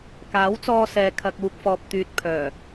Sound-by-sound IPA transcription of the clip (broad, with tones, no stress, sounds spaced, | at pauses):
k aː˨˥ w t͡s ɔː˧ s ɛː˨ kʰ ɐ˨ k̚ uː˨ k̚ f ɔː˨ p̚ t̪ yː˨ t̚ pʰ œː˨˩